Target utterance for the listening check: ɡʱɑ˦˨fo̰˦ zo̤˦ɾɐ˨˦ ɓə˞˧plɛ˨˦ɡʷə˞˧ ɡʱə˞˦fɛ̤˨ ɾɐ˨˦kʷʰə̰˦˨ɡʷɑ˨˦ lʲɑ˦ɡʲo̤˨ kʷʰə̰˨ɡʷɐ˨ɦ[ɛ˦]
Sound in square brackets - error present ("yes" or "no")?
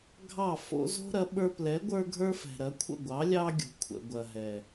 yes